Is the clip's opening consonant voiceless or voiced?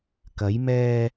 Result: voiceless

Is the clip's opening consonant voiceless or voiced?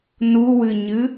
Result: voiced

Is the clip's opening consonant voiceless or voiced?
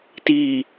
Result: voiceless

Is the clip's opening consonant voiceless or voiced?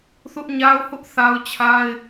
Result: voiceless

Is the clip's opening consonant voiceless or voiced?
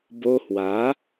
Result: voiced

